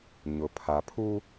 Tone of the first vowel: low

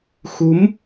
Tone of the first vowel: rising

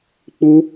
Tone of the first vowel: high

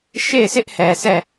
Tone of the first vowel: falling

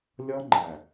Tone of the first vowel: high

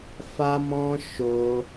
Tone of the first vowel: high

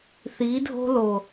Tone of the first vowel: rising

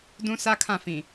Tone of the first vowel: high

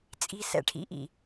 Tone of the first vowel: low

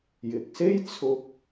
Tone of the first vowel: low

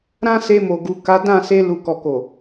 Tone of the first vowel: high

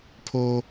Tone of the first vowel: high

